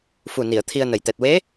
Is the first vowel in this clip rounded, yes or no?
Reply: yes